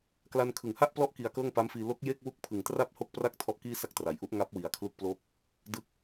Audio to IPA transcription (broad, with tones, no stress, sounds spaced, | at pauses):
k l a˧ n kʰ ɯ˨˩ ŋ h a˥˩ ʔ p l ɔ˦˥ ʔ k i˧ a̯ k ɤː˥˩ ŋ p a˦˥ m f iː˧ l o˦˥ k̚ j e˥˩ k̚ w u˦˥ k̚ pʰ ɯ˨˩ ŋ t r a˥˩ p̚ h o˥˩ k̚ p r a˥˩ k̚ tʰ ɔ˥˩ ʔ k iː˥˩ s a˥˩ k̚ t r a˨˩ j ʔ u˦˥ ʔ ŋ a˦˥ p̚ w i˨˩ a̯ kʰ l u˦˥ k̚ p l o˥˩ k̚ | d ɯ˦˥ k̚